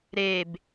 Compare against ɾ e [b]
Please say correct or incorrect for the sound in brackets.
correct